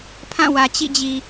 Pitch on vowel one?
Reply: falling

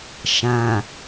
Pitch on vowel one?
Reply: low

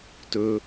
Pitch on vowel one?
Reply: low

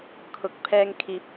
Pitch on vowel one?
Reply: rising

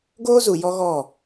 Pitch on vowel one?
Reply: high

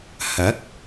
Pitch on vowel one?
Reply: rising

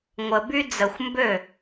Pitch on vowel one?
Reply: low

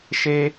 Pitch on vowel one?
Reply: high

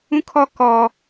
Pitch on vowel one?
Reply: high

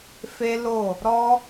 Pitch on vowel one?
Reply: high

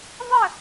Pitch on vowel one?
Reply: falling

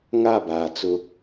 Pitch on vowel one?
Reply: falling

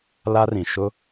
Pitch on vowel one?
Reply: high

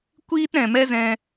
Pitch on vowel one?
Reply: high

